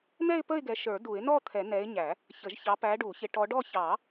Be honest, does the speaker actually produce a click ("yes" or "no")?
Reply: no